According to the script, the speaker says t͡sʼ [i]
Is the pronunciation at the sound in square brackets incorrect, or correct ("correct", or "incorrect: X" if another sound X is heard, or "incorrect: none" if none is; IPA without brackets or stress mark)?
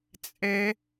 incorrect: e